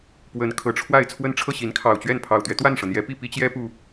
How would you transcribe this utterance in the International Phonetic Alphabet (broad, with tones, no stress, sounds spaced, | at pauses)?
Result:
p w ə˨˦ n kʰ ɤ˨˩ ʈ͡ʂʰ w a˥˨ ɪ̯ t͡sʰ w ə˦ n ʈ͡ʂʰ ɤ˥˨ ɕ i˨˦ n kʰ ɑ˨˩ ʊ̯ t͡ɕ ɥ ɛ˥˨ n pʰ ɑ˨˩ ʊ̯ t̪ ɥ ɛ˦ t̪ w a˥˨ n ʂ ɤ˩ n̪ j ɛ˨˦ p i˥˨ p i˦ t͡ɕ j ɛ˦ p u˨˩